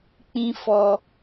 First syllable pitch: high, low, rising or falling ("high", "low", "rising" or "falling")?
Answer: high